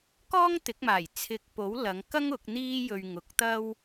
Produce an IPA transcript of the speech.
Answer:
kɔː˥ŋt̪ɪ˨˥k̚maː˨˩j t͡sʰɪ˨k̚po˨˥w lɐ˨˧ŋkɐ˥ŋ ʊ˨˥k̚n̪iː˥ jɵ˧ɥ ŋʊ˨˥k̚t̪ɐ˥w

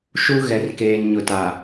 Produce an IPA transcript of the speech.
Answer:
ʃu˦ ɣɛ˨rkeː˨n ɲʊ˨ta˨

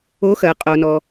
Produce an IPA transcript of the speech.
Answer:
o˨˦xɜ˩qʼo˩nɔ˩

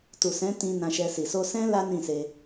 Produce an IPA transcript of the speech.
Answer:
tu˨sɛ̃˨˦tĩ˧ nã˧ʃɛ˧si˨ so˧ sɛ̃˦ la˦nĩ˦˨se˧

